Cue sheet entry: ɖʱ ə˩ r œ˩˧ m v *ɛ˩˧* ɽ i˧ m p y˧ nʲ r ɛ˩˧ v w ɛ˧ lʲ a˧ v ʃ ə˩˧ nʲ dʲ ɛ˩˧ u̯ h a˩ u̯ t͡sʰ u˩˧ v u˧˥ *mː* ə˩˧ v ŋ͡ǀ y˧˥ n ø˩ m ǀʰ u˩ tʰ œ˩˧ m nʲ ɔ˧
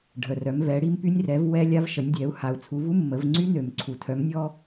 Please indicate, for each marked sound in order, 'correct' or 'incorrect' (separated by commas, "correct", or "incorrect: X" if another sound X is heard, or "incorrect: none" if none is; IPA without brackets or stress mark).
correct, correct